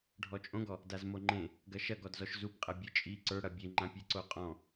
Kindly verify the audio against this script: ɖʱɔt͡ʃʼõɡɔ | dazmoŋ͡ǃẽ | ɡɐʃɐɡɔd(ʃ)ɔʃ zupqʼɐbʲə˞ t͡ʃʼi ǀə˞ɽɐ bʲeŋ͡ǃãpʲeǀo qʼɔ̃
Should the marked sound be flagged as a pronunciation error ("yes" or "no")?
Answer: yes